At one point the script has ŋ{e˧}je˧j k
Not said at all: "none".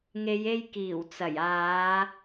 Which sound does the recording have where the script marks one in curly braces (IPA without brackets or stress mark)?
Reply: e˨˧